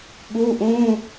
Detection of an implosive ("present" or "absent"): present